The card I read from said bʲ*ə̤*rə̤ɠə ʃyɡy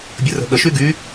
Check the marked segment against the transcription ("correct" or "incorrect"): incorrect